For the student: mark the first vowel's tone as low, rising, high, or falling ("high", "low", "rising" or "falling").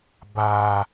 low